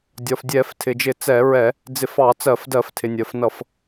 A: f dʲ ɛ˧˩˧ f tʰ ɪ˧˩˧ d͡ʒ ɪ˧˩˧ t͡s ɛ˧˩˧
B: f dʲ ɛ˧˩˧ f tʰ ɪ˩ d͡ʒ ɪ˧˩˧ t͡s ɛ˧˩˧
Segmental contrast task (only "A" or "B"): B